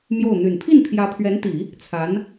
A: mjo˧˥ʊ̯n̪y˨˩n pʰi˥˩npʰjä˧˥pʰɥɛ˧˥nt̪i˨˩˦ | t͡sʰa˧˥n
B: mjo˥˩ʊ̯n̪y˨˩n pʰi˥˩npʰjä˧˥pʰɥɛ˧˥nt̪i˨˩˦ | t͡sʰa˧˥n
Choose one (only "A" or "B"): B